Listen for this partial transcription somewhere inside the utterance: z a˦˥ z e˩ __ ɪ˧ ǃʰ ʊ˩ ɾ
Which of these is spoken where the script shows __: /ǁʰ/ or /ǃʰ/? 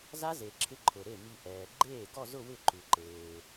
ǁʰ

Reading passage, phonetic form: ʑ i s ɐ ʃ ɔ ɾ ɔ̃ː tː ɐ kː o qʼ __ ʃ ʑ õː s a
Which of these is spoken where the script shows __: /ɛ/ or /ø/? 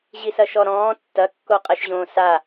ɛ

